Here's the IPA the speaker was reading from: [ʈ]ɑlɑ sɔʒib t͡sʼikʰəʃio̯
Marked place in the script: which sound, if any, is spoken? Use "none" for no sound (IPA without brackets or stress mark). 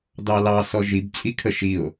d